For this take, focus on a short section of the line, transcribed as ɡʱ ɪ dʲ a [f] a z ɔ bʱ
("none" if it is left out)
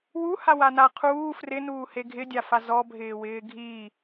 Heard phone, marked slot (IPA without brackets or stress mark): f